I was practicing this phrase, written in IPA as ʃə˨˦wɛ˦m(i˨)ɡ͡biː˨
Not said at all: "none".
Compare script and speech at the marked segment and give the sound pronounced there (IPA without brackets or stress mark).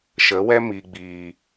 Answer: i˨